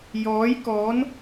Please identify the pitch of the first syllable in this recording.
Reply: rising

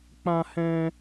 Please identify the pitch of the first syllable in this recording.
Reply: high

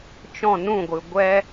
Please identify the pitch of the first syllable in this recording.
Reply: falling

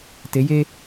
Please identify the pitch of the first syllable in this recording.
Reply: rising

